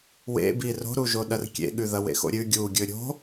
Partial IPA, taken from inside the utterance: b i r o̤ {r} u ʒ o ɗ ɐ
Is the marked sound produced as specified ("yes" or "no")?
no